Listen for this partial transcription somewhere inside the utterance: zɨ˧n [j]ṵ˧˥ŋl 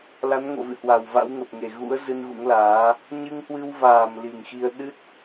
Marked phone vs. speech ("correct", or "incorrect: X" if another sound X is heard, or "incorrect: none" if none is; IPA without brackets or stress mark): incorrect: ɣ